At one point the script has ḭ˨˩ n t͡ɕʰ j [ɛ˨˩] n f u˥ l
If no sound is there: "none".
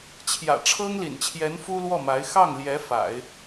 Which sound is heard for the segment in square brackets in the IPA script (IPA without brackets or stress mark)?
ɛ˧˥